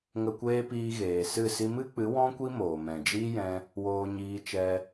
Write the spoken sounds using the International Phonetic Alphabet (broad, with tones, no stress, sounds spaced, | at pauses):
ŋ ə˧ kʷ eː˦ p iː˧ ɣ eː˨ s ɨ˦˨ s i˧ m ɨ˦ k͡p ɨ˨˦ w ɔ̃˦ kʷ i˦ m oː˨ m ɛ̃˨ d͡ʒ iː˦ j ɛ̃˧ | w oː˧ ɲ iː˧ t͡ʃ ɛ˧